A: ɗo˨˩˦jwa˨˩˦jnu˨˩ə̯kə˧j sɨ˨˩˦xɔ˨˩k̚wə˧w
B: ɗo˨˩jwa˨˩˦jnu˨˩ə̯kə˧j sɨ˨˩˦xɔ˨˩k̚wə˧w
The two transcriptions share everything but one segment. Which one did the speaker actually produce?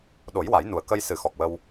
A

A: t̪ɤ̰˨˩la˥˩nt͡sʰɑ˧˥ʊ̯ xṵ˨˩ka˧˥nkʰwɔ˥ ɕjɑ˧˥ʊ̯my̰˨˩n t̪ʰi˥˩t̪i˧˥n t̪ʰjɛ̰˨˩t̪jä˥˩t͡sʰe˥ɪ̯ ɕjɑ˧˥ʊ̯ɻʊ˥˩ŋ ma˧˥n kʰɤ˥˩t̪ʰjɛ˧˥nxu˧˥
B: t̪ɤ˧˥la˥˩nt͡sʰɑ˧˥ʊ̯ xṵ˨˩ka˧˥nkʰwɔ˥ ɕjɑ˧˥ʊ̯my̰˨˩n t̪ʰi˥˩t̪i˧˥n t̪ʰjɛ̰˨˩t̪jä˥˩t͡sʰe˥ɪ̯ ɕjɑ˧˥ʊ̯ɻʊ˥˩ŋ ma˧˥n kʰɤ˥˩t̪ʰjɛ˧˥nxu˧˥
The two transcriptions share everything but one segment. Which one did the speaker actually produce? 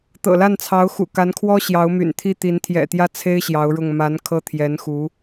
A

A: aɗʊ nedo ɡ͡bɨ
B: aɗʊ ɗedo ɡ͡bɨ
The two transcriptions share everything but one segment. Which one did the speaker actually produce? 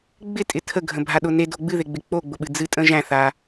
A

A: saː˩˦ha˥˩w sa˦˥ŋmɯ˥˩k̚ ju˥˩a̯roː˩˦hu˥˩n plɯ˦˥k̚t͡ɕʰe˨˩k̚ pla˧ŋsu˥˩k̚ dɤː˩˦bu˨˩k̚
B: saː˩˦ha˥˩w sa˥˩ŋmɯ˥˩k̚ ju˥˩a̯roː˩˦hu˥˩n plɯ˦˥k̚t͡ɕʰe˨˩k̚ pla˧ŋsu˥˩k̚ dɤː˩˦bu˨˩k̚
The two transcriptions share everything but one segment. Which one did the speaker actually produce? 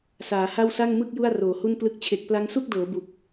B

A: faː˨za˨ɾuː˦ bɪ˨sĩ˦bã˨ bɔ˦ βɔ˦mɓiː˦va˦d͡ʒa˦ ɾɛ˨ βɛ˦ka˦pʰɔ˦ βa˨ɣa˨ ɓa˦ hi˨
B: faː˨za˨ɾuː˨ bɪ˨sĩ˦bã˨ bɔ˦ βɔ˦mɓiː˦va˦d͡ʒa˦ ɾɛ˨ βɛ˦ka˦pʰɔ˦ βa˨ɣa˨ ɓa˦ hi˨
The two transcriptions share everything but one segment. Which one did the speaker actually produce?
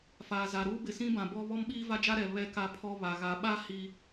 A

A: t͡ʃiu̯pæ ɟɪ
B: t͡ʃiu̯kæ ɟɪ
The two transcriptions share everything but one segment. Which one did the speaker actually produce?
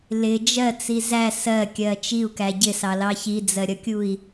B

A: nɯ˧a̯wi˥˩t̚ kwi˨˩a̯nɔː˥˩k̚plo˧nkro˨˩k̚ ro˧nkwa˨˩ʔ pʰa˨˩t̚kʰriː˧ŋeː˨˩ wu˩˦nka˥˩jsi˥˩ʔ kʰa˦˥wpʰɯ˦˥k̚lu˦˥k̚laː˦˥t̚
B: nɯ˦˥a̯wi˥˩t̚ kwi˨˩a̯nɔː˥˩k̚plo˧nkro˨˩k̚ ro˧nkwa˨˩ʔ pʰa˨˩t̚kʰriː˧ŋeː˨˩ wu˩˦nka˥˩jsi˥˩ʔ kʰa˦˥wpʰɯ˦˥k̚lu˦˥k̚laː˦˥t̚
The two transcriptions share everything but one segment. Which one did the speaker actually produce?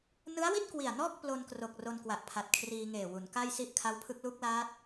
B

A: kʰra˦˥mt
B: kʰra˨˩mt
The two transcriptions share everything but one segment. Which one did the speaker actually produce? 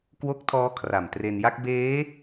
B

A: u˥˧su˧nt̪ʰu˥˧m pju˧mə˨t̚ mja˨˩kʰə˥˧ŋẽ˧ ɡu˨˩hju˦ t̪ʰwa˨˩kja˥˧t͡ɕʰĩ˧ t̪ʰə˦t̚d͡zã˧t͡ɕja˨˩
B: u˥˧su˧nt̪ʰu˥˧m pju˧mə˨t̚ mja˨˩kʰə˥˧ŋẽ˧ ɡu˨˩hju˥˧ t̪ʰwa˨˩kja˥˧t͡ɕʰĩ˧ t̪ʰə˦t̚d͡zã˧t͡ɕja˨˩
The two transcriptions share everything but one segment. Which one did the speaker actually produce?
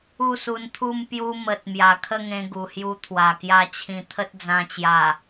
A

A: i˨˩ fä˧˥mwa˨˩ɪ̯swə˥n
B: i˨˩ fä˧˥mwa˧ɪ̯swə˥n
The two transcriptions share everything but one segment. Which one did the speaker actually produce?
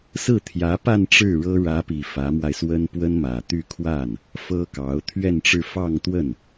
B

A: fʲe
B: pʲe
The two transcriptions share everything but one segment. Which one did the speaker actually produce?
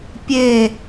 B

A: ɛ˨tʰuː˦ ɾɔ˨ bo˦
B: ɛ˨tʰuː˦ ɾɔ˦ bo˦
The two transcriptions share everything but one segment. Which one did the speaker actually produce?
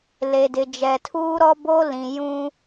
B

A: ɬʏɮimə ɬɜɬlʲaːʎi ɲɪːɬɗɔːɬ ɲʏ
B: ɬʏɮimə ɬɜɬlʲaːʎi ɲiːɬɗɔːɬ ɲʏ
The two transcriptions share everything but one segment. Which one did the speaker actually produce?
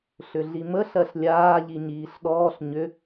B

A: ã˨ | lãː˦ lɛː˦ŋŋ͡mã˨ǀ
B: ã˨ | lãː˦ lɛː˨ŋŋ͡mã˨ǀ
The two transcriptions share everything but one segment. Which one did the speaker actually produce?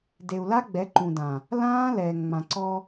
B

